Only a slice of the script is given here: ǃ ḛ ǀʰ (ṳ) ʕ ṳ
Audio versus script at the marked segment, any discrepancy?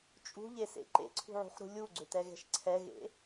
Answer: no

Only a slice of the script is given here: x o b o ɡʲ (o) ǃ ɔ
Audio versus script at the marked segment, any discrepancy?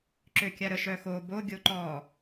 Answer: no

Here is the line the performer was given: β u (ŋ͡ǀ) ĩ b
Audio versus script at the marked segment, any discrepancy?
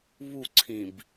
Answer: yes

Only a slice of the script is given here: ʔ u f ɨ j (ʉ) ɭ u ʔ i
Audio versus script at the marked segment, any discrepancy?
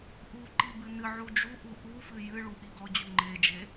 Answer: yes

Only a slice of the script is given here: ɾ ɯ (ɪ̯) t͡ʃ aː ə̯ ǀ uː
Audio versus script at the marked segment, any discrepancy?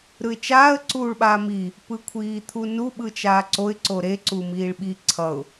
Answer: no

